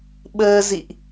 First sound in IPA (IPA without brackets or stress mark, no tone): ɓ